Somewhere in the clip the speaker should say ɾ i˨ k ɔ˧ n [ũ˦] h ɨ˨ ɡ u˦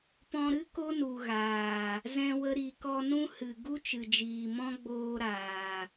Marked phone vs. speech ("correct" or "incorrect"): correct